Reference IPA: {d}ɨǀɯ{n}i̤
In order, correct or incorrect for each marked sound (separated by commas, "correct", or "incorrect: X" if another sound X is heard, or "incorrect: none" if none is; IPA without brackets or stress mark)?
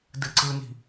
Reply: correct, correct